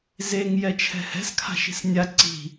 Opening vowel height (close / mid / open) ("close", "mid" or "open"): mid